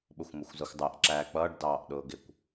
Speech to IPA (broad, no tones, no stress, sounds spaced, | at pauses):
ɓ ʊ xʷ m ʊ xʷ z ʌ xʷ dˤ æ ʔ ǁ æː k͡p ʌː ɖ d ɑː ʔ ɗ ʊː ɡ ɪ kʷ